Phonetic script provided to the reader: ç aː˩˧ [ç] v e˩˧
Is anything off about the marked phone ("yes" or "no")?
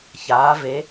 yes